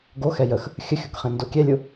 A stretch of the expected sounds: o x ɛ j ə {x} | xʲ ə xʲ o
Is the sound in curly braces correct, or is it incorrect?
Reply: correct